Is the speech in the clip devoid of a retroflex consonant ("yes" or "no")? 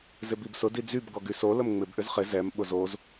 yes